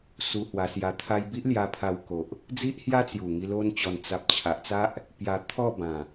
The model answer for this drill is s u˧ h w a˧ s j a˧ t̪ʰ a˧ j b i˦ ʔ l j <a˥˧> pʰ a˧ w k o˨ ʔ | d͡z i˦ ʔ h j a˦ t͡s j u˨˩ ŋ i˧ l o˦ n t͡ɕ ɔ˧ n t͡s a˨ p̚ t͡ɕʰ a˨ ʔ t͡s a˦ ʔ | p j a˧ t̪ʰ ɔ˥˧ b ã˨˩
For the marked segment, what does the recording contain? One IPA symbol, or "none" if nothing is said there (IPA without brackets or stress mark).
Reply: a˧